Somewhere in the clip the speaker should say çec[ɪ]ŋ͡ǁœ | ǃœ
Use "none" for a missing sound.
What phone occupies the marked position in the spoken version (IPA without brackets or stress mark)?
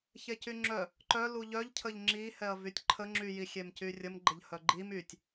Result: y